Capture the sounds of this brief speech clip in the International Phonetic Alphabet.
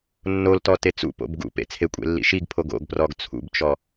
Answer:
nːoltɔ tet͡sṵ po̰bɡṵpḛ t͡sʰekʷʼḛlːḭ ʃiɡpʰoɡ o̰ɡprɔɡ t͡sʰṵbt͡ʃɔ

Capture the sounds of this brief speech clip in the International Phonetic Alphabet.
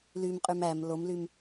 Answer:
lymqʼym æm lomlym

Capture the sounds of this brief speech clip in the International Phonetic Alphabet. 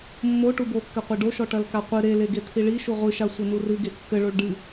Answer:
mːo ʈubokːɘqʷe ɖoʃɔ ʈɐlkaqʷɨ ɾeleɡe t̪ʰiɭiʃu ʁʷɨʃa sʷɘnurɨɡe kːɘɭoɭ ɖɨ

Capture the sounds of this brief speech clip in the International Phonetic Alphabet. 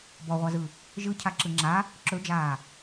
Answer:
bɔʁʷazɯ | ʒɯ cʰaǁɯŋ͡ǁa | ǁɵd͡ʒaː

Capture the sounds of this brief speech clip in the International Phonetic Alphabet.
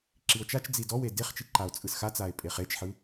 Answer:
ǁio̯t͡ʃat͡ʃd͡zi dɔwe deχt͡ʃi ǃao̯t͡sʼɯsxat͡sae̯ pʼeχet͡ʃħɯ

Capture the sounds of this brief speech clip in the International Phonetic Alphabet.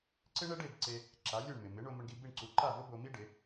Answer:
ǀɪ˥ ɳɛ˥ɖe˥˩b ǀe˧ | ǁa˩˥lʲo˥˩ɳ mɪ˩mɪ˩˥ ɳo˧mʊ˧ɳɡi˧ bi˥˩ɳǀu˩˥ ǃa˥˩vʊ˥ bo˧mi˥ ɖɪ˩˥

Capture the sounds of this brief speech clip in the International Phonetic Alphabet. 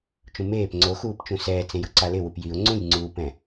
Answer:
t͡ʃũmeːp ŋ͡ǀoxuːpt͡ʃũ sɛːt͡sẽj ʊǀalɪ wupjiʊ̯ ŋ͡ǀũj ŋ͡ǀupɛ̃

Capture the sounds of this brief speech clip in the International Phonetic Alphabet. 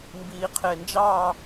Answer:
mbiːqʰɪːnd͡ʒɑ

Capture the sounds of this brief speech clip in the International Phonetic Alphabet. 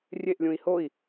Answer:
rʲeʔlʲũi̯ hoi̯

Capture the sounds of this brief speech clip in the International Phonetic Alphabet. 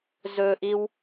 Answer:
zɵʔiw

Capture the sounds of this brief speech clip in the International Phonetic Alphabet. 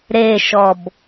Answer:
ɾeʃɔb

